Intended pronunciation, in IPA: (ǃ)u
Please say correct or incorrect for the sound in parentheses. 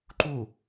correct